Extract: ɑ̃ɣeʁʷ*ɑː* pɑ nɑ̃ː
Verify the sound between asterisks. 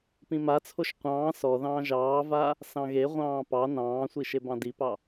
incorrect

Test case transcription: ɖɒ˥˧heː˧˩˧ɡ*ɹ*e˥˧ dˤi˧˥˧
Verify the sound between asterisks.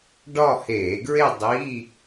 correct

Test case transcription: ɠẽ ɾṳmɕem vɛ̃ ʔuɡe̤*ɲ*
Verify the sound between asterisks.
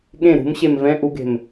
incorrect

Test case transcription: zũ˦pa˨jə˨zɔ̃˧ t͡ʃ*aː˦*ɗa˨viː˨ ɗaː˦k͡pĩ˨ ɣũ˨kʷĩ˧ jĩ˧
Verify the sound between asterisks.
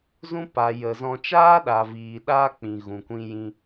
correct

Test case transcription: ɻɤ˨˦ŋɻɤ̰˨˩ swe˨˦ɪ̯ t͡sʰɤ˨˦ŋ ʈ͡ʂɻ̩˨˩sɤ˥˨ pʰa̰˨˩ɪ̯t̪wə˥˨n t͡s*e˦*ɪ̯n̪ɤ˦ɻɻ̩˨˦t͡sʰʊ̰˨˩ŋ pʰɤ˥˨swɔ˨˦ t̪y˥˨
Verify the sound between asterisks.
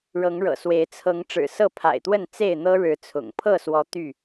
incorrect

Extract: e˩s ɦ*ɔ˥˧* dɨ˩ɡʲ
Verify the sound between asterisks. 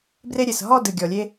correct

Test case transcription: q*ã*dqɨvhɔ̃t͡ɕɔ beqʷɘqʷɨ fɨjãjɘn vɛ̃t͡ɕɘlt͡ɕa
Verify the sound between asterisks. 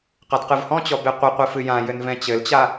incorrect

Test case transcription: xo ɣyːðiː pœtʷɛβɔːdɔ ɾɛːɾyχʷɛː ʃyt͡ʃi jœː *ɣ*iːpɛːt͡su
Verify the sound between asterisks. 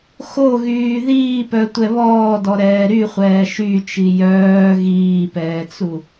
correct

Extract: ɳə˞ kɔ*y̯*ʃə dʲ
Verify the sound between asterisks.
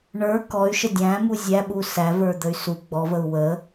correct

